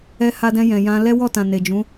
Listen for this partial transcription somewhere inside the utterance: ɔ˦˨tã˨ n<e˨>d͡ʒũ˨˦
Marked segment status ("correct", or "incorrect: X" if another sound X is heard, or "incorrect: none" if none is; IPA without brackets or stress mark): correct